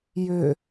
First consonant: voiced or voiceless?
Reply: voiced